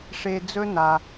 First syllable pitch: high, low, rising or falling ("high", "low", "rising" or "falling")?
low